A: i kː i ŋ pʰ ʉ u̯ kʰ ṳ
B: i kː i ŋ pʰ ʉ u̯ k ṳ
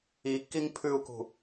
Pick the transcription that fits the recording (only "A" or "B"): B